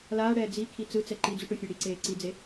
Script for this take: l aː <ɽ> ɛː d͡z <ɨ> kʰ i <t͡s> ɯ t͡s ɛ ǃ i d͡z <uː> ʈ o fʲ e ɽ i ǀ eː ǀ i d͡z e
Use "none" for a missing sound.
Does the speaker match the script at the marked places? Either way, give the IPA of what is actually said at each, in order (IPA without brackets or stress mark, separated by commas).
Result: ɽ, i, t͡s, u